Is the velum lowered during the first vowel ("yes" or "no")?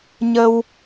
no